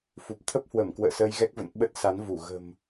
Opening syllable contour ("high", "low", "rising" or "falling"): low